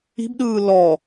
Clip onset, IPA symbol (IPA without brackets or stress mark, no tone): i̤